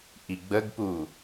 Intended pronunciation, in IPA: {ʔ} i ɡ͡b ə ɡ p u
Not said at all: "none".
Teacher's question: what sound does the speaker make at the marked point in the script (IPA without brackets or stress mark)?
ʔ